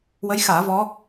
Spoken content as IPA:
w ə˧˥ j x aː˨˩˦ v ɔ˧˥

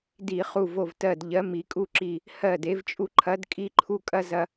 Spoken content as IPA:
d i˧˩˧ χ u˧˩ v o˧˩ v t ɜ˧˩ d ʎ ɜ˨˥ m i˩˧ kʼ u˥˩ ǁ i˧˩ | h ɜ˥˩ d e˨˥ v t͡ʃʼ u˦ ǃʰ ɐ˨˥ d kʼ i˦ ǃʰ u˦ kʼ ɐ˦ z ɐ˦

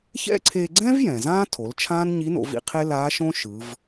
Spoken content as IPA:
ç ɛ̰˥ ǀʰ e˧ ɡ͡ǀ ɛ̃˥ v j ɛ̃˩ z ãː˥ tʰ o˩˧ l t͡ʃʰ ãː˥ n ɲ i˧˥ n o̰˩˧ v ḭ˥ qʰ e˥ l aː˧˥ ʃ õ˥ ʃ ɯ˩˧ v

